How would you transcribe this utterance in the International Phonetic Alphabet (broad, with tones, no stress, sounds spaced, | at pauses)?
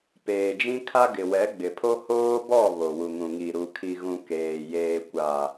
p eː˨ d͡ʒ ĩ˦ kʰ a˦ ɡ ɪ˨ w ɛ˨˦ ɡ͡b ɪ˨ pʰ o˦ h oː˦ b ɔ˦˨ β o˨ w u˨ ŋ ũ˨ ŋ i˨ ɾ u˨ kʰ i˨ ɣ ũ˨ k eː˨ j eː˨ kʷ a˨